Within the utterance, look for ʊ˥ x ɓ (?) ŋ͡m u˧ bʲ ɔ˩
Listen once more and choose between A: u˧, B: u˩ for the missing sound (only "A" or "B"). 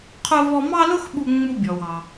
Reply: A